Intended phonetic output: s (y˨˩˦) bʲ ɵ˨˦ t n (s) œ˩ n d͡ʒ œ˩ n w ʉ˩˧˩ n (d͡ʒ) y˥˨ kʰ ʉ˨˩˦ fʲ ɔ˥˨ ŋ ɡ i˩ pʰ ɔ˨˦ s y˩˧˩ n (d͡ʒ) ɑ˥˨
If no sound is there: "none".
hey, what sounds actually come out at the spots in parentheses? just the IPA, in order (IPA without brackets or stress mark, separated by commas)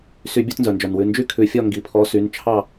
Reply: y˨˩˦, z, d͡ʒ, t͡ʃʰ